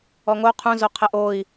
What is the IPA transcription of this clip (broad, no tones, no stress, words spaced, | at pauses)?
ɔŋo qʰũzoqʰɛʔ oi̯